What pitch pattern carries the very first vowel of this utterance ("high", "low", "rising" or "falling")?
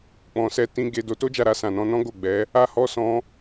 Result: low